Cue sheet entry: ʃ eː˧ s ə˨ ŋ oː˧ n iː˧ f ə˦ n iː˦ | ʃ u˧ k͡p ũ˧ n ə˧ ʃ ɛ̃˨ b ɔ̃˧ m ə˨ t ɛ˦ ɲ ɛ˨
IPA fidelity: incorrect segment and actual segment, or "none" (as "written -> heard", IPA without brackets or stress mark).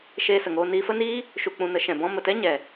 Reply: none